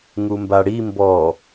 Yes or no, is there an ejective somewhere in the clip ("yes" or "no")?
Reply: no